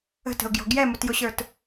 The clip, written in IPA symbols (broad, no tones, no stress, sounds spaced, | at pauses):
ə̤ t ə̤ ʊ̯ ɡ j ɔ̤ ɡ j ɛ m ʊ t j ʊ ɕ ə˞ t